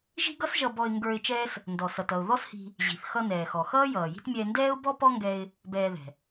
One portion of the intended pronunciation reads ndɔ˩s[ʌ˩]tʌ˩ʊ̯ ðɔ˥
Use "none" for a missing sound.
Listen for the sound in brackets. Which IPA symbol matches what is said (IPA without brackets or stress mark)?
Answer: ʌ˩